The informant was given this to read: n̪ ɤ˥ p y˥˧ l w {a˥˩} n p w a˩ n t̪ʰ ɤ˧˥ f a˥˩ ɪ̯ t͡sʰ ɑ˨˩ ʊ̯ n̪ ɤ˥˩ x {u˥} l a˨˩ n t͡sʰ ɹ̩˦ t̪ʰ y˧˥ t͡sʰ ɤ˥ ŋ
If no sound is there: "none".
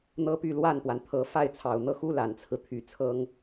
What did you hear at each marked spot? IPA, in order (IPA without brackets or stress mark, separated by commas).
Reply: a˥˩, u˥